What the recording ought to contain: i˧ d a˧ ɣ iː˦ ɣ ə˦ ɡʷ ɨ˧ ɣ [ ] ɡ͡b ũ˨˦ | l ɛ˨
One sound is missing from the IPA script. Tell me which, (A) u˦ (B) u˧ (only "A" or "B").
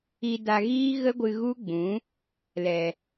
A